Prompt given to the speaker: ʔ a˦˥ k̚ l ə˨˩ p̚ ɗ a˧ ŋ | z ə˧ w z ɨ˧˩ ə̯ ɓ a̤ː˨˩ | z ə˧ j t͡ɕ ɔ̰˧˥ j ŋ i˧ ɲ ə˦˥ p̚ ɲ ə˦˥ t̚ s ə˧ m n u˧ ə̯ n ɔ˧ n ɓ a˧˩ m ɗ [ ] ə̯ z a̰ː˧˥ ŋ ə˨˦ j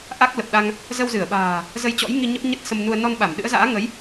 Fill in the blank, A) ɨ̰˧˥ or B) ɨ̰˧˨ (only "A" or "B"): A